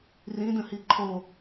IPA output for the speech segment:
r ĩ d ə̃ h i ǃʰ o

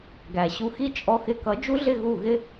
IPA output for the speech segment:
ɡ æ˨ ɕ u˧ x i˦ t͡ʃʼ ɔ˧ x ɪ˧ k ʌ˨˦ d͡ʒ u˦ ɮ ɪ˦˨ ɣ u˦˨ ɣ ɪ˦

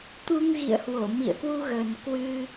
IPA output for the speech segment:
t̪ u˧ ŋ ɣ ḭ˧˨ ə̯ h w o˧˩ m ḭ˧˨ ə̯ k w u˧ ɣ ə˨˩ n k w ɨ˧

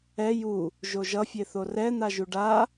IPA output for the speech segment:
ɛ j u | ʒ o ʒ ʌ fʲ e θ o r ɛ n̪ a ʒ u ɖ a

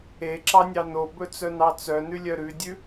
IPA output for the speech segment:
e ǁ ɑ nʲ ɑ n o b ɵ t͡s œ n ɑ t͡s œ n ʉ lʲ œ ɾ ʉ dʲ ʉ

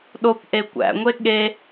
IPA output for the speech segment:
ɗ o p ʔ e kʷ æ̰ ŋʷ e ɠ e

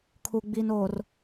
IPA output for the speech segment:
kʰ uː˨ ɡ͡b iː˨ n oː˨ r

